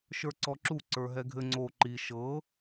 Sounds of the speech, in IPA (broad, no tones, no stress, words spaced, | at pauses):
ʃə˞ǀɔǁu ǀə˞ɦɛɡʱɘ ŋ͡ǀo ǃi ʃɤ